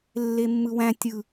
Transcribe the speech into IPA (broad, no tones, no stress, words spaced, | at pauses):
lːemːɯwæ̃ tʲɯ